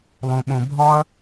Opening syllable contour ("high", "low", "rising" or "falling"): low